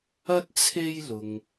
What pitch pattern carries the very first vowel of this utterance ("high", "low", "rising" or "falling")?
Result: high